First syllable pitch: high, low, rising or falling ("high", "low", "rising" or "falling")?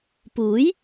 rising